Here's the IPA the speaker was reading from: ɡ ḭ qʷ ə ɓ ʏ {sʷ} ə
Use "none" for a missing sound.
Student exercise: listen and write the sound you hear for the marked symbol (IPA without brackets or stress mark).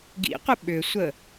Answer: sʷ